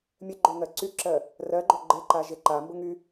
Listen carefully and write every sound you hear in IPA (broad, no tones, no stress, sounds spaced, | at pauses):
mʲ ə ɡ͡ǃ o ŋ ɜ ǀ y ǁ ɜ | r ɜ ɡ͡ǃ o ɡ͡ǃ e ǃ a ʒ e ǃ a m b ʊ ŋ y